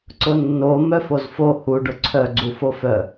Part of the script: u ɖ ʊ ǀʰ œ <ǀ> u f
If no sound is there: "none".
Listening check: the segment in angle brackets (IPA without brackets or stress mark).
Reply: ɡ͡ǀ